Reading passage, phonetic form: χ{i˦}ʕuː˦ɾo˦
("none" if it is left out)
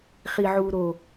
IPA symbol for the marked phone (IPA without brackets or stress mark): i˦